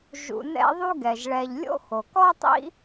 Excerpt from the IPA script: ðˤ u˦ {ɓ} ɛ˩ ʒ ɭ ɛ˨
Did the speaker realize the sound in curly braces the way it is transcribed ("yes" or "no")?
no